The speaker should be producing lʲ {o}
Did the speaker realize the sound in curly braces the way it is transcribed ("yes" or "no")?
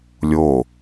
yes